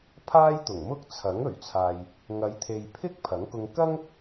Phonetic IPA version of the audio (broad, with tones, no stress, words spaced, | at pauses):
pʰaː˥jt̪ʊ˨˩ŋmʊ˥k̚ t͡sʰɐ˨˥ŋ ɵ˨˩ɥt͡sʰaː˨j | ŋɐ˨˧jt̪ʰe˨jpʰɪ˥k̚ pʰɐ˨˥ŋkʊ˧ŋ kɐ˥ŋ